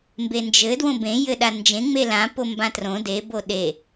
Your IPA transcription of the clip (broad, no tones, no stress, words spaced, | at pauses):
mbend͡ʒɘ dwõbẽ jɘɗand͡ʒẽ ŋ͡melã pombãtrõ de boɗe